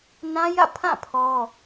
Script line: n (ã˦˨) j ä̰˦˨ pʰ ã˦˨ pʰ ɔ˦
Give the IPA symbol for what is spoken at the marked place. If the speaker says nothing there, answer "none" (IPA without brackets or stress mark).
ã˦